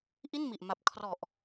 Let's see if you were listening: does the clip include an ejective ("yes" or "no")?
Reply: no